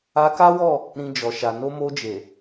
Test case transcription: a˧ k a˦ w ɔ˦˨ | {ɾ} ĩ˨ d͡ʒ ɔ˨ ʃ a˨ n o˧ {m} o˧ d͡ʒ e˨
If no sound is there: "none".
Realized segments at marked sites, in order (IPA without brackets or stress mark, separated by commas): ɾ, m